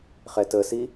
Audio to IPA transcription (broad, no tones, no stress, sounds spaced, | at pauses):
χ ɛ t ə s i